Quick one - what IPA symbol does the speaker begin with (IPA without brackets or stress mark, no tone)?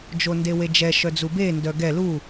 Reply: d͡ʒ